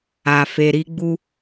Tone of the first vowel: low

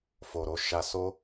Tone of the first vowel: low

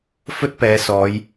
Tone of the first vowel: high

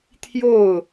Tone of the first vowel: falling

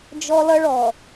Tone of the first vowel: high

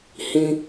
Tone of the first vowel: high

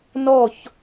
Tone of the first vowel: falling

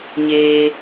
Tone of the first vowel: low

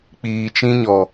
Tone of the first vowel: low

